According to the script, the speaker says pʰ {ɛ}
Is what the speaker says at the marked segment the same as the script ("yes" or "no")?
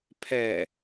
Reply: yes